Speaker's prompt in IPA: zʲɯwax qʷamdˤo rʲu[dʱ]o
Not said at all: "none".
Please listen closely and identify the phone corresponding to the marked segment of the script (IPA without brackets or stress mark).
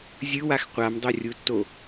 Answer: tː